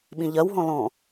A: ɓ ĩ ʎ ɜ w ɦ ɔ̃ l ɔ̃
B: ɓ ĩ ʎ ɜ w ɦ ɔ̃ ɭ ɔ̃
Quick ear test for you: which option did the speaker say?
A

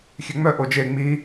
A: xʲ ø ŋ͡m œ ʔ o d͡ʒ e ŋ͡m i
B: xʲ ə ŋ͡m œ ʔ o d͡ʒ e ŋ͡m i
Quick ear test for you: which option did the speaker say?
A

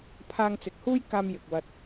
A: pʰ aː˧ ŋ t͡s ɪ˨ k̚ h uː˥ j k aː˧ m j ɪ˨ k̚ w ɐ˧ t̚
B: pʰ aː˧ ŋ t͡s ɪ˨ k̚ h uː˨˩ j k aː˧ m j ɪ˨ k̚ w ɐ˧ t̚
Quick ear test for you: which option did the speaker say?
A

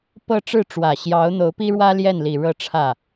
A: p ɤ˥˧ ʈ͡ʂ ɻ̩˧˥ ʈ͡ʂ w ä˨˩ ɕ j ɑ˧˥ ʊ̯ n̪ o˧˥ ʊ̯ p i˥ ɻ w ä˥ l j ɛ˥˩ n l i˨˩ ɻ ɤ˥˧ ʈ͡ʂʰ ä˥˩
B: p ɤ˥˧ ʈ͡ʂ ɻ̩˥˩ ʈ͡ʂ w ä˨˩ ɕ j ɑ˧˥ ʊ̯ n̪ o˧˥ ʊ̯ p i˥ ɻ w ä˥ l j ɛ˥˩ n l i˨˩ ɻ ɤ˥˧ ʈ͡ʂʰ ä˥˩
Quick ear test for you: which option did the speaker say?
B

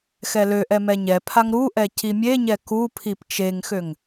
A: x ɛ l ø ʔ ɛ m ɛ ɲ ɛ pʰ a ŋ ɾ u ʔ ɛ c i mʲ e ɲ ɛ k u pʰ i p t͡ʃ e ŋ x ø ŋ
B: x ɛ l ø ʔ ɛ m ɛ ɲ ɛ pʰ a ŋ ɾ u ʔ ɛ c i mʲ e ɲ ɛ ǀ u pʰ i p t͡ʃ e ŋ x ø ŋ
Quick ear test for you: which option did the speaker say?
A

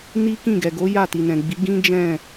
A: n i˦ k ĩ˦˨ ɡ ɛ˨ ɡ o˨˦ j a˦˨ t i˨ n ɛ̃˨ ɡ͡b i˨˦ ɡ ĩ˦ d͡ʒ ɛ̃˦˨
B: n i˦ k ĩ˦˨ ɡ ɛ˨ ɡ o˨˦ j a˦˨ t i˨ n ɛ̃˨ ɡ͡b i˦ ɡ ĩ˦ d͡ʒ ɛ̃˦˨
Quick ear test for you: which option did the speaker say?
A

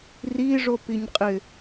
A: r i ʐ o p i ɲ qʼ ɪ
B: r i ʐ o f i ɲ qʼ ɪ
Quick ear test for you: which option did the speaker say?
A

